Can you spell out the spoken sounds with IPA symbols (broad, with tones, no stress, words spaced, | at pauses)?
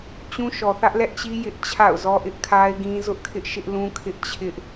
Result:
t͡ɕũ˦ʃɔ˨θä˦ʔ lɛ˦ʔt͡ɕi˦ jɪ˦ʔ t͡ɕʰa̰˦˨ʊ̯zɔ˦ ʔɪ˦ʔkʰa˦ɪ̯ɡĩ˦ zʊ˦ʔkʰɪ˦ʔʃɪ˦ʔlũ˦ kʰɪ˦ʔt͡ɕʰɪ˦ʔ